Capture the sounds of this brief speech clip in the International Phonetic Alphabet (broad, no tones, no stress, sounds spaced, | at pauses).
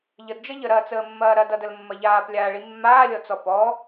ʎ ə d d͡ʒ ʌ ʎ ə ɾ ɐː t͡s əː mː ɐː ɾ ɐ d ʌ d ə l mː ɐ ʎ aː p lʲ aː ɭ i mː aː lʲ ɔ t͡s ɔ p ɔ